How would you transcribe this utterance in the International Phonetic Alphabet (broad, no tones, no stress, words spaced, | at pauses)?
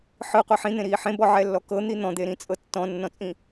ħɯqʷi ħĩn̪ẽɾiː ħẽbɔʕɛlːɔ kɤn̪i n̪ɔ̃d̪eɾĩt͡sʼɤ tːɔ̃nːɔ̃t͡sʼĩ